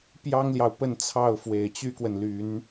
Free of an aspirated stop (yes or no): no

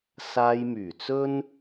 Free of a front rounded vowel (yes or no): no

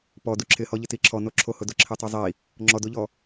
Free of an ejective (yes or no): yes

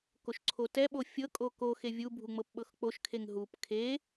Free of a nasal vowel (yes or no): yes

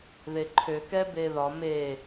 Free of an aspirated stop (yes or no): no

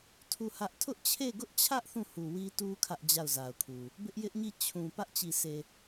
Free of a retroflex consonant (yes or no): yes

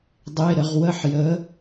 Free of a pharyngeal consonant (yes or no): no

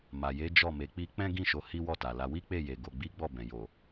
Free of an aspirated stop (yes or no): yes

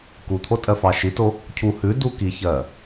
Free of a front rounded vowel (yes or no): yes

